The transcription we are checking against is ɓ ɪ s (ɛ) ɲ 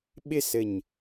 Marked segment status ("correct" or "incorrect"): incorrect